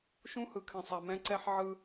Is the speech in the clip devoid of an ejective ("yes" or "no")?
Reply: yes